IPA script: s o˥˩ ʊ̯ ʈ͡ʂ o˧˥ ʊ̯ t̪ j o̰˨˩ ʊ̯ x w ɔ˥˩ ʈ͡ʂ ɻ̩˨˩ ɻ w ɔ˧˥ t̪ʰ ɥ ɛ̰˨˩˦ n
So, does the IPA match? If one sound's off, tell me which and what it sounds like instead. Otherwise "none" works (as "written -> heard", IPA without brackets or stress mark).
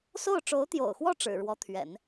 none